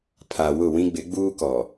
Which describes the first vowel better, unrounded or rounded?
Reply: unrounded